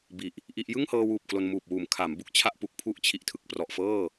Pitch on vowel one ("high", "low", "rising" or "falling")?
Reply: low